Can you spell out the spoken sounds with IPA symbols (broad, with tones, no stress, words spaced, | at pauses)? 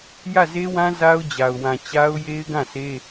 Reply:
jä˦˨ze˦wã˦ za˦ʊ̯d͡ʑa˨ʊ̯wã˨ t͡ɕa˦ʊ̯je˦ɪ̯ɡã˦˨se˦